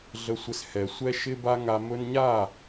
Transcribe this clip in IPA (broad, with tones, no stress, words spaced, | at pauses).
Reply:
ɮə˨sʷɪ˨s hɛ˨sʷɛ˦ ʃɪ˦ba˦ŋa˧ mɵ˧nɲa˦˨